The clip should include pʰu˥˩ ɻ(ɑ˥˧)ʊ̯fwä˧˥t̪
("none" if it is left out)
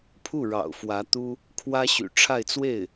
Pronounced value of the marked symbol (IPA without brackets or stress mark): ɑ̰˨˩